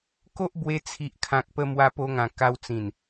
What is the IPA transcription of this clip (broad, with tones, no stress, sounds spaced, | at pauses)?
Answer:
k o˦ ʔ b w e˧ t͡sʰ i˨ ʔ kʰ ã˨ k̚ p ə˧ m w a˧ p o˧ ŋ ã˨˩ k a˧ w t͡s ĩ˨˩ n